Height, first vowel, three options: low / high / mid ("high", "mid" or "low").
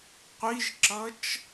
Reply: high